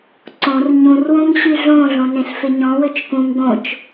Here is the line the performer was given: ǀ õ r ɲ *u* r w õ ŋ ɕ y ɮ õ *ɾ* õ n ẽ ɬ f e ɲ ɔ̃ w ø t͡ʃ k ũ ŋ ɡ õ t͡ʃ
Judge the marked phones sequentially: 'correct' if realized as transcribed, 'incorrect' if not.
incorrect: ũ, incorrect: ɮ

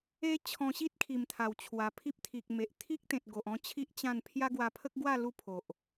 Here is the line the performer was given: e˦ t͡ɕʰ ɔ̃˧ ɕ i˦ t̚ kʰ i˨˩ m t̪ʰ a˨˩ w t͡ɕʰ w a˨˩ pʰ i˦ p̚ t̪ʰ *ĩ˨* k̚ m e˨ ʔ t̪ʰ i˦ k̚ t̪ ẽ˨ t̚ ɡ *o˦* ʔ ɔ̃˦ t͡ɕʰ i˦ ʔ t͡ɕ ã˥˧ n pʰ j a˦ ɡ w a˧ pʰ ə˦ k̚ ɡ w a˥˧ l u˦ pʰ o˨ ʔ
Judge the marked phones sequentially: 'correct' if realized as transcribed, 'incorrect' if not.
incorrect: i˨, incorrect: o˨

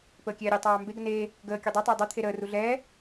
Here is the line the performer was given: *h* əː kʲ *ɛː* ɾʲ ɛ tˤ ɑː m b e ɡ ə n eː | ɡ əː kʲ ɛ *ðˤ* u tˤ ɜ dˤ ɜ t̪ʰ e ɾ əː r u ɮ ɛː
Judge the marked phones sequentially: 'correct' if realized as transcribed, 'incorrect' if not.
incorrect: p, correct, incorrect: dˤ

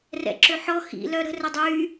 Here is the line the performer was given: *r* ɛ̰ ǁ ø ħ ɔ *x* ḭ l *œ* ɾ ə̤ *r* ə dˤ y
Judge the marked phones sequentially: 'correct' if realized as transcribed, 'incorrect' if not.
correct, correct, correct, correct

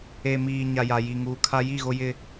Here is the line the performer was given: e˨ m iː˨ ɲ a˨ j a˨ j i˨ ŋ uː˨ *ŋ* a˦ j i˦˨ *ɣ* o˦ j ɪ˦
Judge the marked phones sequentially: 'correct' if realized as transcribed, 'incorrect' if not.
incorrect: kʰ, correct

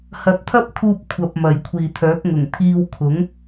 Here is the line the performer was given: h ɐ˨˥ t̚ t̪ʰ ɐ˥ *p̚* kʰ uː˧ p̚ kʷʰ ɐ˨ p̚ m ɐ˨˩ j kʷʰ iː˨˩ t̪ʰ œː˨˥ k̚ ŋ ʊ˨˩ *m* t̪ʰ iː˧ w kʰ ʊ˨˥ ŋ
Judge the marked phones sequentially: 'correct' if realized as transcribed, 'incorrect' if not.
correct, incorrect: ŋ

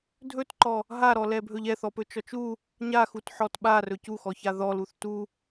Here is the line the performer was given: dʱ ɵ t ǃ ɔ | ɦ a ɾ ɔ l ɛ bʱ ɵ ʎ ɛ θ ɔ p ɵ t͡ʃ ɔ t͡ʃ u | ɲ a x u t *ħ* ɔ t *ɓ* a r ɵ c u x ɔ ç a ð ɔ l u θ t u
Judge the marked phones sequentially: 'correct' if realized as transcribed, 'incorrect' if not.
correct, correct

